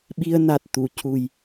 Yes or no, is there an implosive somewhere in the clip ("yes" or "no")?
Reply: yes